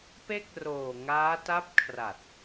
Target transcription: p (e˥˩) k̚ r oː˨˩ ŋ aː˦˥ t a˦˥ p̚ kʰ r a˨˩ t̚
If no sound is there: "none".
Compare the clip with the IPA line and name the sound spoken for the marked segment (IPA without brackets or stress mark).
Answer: e˥˩